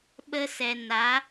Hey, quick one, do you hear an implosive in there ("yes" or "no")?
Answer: yes